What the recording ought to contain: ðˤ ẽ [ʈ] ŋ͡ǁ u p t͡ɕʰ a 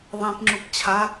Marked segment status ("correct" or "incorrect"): incorrect